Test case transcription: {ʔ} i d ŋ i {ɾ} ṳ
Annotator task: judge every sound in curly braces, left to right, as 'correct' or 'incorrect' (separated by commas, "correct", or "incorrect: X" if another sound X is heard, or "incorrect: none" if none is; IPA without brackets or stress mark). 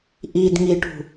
correct, incorrect: ʈ